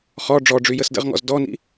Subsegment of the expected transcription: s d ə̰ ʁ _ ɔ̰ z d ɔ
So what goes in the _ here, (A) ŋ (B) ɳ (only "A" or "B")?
A